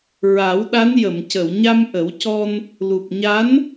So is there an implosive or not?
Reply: yes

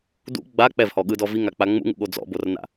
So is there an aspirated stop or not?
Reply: no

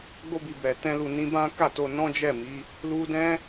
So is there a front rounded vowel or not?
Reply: no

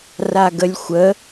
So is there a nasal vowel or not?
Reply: no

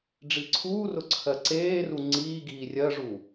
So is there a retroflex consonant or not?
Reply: yes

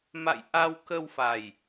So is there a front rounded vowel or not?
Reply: no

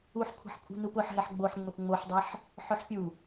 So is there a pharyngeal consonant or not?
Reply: yes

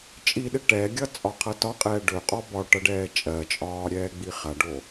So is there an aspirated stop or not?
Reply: yes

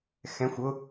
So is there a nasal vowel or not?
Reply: yes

